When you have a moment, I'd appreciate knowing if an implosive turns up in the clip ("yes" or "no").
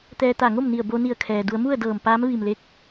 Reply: no